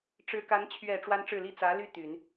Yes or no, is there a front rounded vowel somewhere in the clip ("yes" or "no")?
yes